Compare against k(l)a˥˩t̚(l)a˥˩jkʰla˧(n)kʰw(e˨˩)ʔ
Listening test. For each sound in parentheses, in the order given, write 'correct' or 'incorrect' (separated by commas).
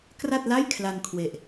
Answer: incorrect, correct, correct, correct